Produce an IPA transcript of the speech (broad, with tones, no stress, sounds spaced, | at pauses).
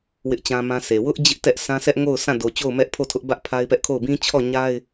w ɪ˦ ʔ t͡ɕ ã˦ m ã˦ s e˨ w ʊ˦ ʔ d͡ʑ ɪ˦ ʔ t ɛ˦ ʔ sʰ ã˦ sʰ ɛ˦ ʔ ŋ o˦˨ ʊ̯ sʰ ã˦˨ d o˨ t͡ɕ o˦˨ ʊ̯ m ɛ˦ ʔ pʰ o˦˨ tʰ ʊ˦ ʔ b ä˦ ʔ pʰ a˦ ɪ̯ p ɛ˦ ʔ kʰ o˦˨ ʊ̯ b ĩ˦ t͡ɕʰ ɔ˦˨ ɲ a˦ ɪ̯